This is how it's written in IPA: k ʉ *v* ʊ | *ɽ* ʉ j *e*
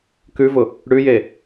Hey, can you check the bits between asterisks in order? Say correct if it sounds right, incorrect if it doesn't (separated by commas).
correct, correct, correct